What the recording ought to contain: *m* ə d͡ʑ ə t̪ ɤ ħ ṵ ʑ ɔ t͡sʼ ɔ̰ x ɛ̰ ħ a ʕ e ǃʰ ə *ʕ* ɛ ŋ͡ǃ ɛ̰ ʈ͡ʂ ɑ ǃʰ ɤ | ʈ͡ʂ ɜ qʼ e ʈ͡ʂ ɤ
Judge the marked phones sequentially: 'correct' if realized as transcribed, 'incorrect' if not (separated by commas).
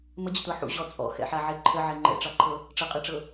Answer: correct, correct